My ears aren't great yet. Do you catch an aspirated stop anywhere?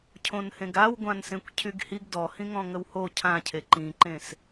yes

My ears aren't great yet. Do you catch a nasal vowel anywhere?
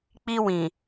yes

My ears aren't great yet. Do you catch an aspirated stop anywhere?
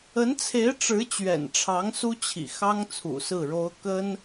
yes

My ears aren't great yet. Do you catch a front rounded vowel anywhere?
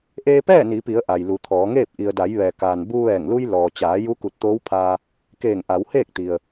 no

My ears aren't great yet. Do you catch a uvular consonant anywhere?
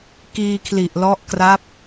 no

